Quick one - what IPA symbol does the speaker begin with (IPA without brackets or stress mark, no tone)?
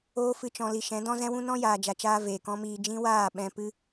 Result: oː